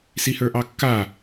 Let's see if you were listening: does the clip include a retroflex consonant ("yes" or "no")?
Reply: no